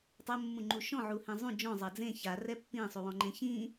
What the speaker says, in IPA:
tˤ ɐ mː ũ ŋ͡ǃ u ʃ ɔ̃ ʕ u h ẽ zˤ ũ d͡ʒ ɔ̃ zˤ ɐ d͡z ẽ ç a r ɛ pː ĩ sˤ u w ɔ̃ ŋ͡ǃ ẽ ç ĩ

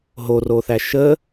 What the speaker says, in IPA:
ɦ o r o θ æ ʃ ə

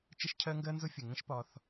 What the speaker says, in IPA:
t͡ʃ ə˦ ʃ cʰ ɜ˦ ŋ ɡ ɜ˦ n z ʊ˦ fʲ ə˨ ŋ ə̃˦ ʃ p ɒ˧ θ

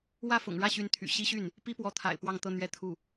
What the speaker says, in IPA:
w ä˥˩ f ʊ̰˨˩ ŋ ɻ ä˥˩ ɕ y˧˥ n t̪ʰ y̰˨˩ ɕ i˥ ɕ y˥˩ n | p i˥ p w ɔ˧˥ t̪ʰ a̰˨˩ ɪ̯ p w ɑ˥˧ ŋ t̪ ɤ˥˧ n̪ ɥ ɛ˥˧ t̪ʰ u˥˩

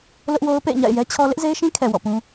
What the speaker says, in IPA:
l ʊ˦ ʔ w o˦ ʊ̯ p ḛ˦˨ ɪ̯ ɲ a̰˦˨ ɪ̯ j ɛ˦ t͡ɕʰ ɔ˦ l ɪ˦ ʔ z e˦ ɪ̯ ʃ ĩ˦ kʰ ɛ˨ w ɔ̰˦˨ p ũ˦

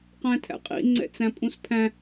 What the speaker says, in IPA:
q æ̃ tʰ æ̰ qʼ ḭ ŋ͡ǀ ɛ̰ t͡s æ̃ pʼ ũ s pʰ æ̃

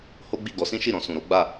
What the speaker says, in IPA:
h o˦ ɡ͡b i˦˨ ɡ ɔ˨˦ s ĩ˦ ʃ i˦˨ ɾ ɔ̃˧ s ũ˨ ɾ o˨˦ ɡ͡b a˦˨

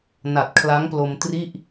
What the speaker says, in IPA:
n a˨˩ t̚ kʰ l a˦˥ ŋ p l o˧ m t r i˥˩ ʔ

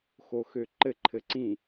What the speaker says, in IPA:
x o x ø ǃ ɘ ǃʰ ɘ ǀ ĩ

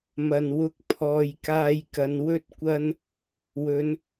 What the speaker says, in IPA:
m ɐ˨ n w ʊ˧ k̚ pʰ ɔː˨ j k aː˧ j k ɐ˨˧ n w ɵ˥ t̚ kʷ ɐ˥ n | w ɵ˨˧ n

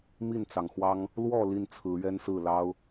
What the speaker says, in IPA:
m i˥˨ n t͡s ɑ˩ ŋ x w ɑ˦ ŋ | l w ɔ˥˨ l i˥˨ n t͡sʰ ɹ̩˨˦ ɥ ɛ˦ n s ɹ̩˥˨ l ɑ˦ ʊ̯

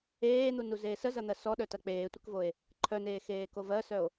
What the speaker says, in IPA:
eː n̪ u n u z eː s ə z ɐ n̪ ɜ s ɔ ɗ œ t ɐ k͡p eː tʷ ɪ k v o e̯ | ǃʰ œ n eː x eː k o v ɜ s œ o̯

